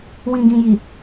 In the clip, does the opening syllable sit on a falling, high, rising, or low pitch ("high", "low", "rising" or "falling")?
low